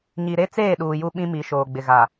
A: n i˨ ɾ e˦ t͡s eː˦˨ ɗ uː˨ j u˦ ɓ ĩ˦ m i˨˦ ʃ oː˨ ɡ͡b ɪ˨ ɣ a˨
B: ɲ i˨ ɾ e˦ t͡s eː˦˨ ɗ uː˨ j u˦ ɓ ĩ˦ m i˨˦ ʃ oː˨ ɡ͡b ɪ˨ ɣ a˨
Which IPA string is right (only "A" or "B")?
B